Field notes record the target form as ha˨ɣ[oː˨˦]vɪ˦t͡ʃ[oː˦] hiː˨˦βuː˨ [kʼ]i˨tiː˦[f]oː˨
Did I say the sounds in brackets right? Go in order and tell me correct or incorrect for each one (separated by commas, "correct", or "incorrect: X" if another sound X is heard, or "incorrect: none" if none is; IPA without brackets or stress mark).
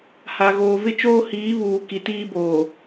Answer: incorrect: oː˨, correct, incorrect: k, incorrect: b